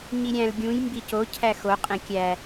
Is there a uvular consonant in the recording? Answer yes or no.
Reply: yes